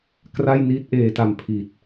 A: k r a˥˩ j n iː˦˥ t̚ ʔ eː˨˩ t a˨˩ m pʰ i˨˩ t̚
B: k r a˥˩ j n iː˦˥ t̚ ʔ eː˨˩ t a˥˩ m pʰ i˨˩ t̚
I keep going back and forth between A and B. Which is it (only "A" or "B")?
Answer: A